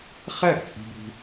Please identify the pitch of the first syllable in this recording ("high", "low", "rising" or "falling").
falling